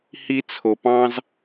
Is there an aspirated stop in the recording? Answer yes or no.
yes